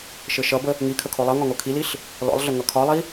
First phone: ʃ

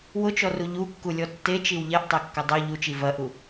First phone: w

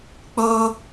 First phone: k͡p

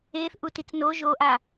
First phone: eː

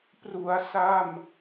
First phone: p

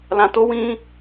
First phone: l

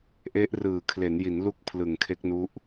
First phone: ʔ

